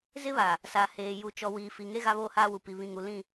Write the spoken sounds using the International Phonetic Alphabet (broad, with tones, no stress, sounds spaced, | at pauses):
z ɪ˦ β a˨ | s a˨ h eː˨ j u˨ t͡ʃ ɔ˨ w iː˨ f i˨ ŋ e˦ ɣ a˦ β oː˦ h aː˦ w u˨ p i˨ β ĩ˨ ŋ u˨ l ĩ˦˨